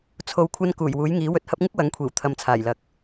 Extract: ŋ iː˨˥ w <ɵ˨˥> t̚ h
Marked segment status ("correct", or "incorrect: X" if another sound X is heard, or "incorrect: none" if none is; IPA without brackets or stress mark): incorrect: ɵ˧